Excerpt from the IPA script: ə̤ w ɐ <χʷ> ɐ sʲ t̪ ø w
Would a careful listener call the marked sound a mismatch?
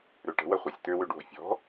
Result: no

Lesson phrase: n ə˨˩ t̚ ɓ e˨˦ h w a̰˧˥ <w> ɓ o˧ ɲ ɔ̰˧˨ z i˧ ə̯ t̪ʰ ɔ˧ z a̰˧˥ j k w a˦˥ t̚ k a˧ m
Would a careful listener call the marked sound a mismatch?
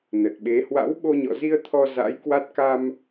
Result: no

